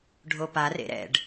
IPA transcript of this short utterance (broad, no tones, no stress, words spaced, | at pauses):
ɖʱopa rḛɾɛ̰ɖ